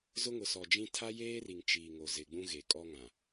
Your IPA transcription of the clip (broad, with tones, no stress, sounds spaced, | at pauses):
z ʊ˦ ŋ ʊ˨ s ɔ˨ d͡ʒ ĩ˦ tʰ a˦ j eː˦ r i˨ ŋ t͡ʃ iː˨ ŋ o˨ z ɪ˨ ɡ͡b ũ˦ ɣ e˨ kʼ ɔ˦ ŋ ã˨